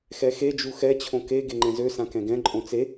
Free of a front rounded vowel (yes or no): no